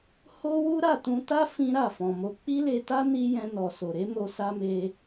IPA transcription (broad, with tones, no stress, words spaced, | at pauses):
ho˦wu˦ ɾa˦˨tũ˧ta˦ fĩ˦ɾa˦˨fɔ̃˨mo˧ k͡pi˦le˧ta˦ ni˦ jɛ̃˧nɔ˨ so˨ɾe˨˦mo˧ sa˦ me˧